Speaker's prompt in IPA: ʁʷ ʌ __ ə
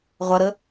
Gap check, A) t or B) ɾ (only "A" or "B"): B